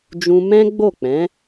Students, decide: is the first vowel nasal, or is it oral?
nasal